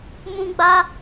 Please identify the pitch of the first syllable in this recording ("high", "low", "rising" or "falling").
high